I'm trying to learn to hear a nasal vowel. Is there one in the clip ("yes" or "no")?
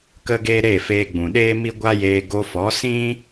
yes